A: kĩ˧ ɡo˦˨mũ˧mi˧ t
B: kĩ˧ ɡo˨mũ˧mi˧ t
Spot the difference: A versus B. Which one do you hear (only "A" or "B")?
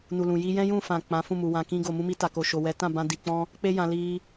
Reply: B